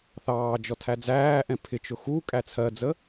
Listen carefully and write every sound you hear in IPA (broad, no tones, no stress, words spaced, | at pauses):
θɑː d͡ʒɔtʰæd͡zæːʔɛ̃ pʰɪt͡ʃʊ xu kʼæt͡sʰɜd͡zə